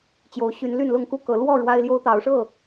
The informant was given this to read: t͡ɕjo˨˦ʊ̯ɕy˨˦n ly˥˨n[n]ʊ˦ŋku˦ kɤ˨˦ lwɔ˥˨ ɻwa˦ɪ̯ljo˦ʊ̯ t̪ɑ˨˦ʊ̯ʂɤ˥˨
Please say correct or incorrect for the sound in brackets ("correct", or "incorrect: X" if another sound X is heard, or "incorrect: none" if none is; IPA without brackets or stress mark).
incorrect: l